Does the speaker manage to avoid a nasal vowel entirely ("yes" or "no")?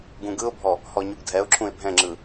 no